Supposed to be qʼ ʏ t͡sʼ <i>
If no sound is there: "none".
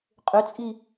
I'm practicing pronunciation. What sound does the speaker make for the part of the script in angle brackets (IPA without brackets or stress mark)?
i